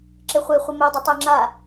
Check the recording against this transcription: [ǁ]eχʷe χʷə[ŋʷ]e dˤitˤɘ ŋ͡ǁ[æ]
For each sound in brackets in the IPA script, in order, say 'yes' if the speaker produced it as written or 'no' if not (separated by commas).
yes, no, no